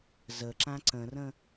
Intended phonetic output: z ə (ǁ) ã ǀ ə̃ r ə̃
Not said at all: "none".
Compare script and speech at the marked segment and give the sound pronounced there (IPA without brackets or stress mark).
ǁ